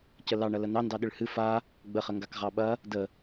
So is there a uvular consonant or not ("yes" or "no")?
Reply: yes